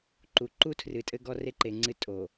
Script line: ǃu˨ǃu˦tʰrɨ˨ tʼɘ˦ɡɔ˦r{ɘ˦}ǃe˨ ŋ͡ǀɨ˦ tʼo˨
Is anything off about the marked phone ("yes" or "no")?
yes